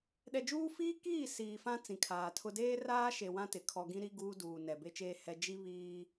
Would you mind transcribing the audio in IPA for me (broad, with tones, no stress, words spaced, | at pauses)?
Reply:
ɗɛ˨d͡ʒuː˦ fiː˦kiː˦˨ siː˨fã˦ t͡sĩ˨kʰaː˨tʰʊ˦ deː˦raː˦ ʃe˨wã˦ tɪ˨kʰɔ˦ ɡĩ˦ɾi˦ ɡuː˦duː˨ nɛ˨be˦t͡ʃeː˦hɛ˦ d͡ʒi˦ βiː˦